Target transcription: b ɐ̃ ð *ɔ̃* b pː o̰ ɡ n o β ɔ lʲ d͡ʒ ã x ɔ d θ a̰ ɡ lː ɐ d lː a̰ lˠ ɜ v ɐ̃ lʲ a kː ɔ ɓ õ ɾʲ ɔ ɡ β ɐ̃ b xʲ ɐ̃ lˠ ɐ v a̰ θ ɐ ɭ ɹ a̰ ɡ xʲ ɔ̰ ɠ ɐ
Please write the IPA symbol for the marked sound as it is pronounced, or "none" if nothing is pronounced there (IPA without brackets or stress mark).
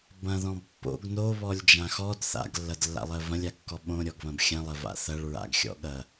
ɔ̃